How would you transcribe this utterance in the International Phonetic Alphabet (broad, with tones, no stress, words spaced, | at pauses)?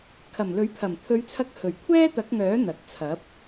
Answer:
kʰɐ˨˩mlɵ˨˥ɥpʰɐ˨˩m t̪ʰɵ˨˧ɥt͡sʰɐ˧k̚ hɵ˨˩ɥ kʷʰɛː˥t̪ɐ˨˥k̚ŋœː˨˥ n̪ɐ˨k̚t͡sʰɐ˨˥p̚